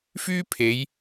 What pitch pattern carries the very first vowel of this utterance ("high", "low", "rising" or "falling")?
high